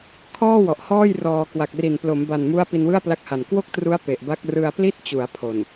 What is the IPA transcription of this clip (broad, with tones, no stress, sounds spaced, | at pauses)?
kʰ ɔː˥˩ w ɔ˨˩ ʔ h ɔː˥˩ j r ɔː˧ k w a˨˩ k̚ r i˨˩ n p l o˩˦ m b a˨˩ n m u˦˥ a̯ p i˧ n w ɯ˥˩ a̯ p l a˦˥ k̚ h a˨˩ n k w o˥˩ k̚ t r u˦˥ a̯ p e˨˩ ʔ b a˦˥ k̚ r ɯ˧ a̯ p l i˥˩ t̚ t͡ɕ u˩˦ a̯ pʰ o˨˩ n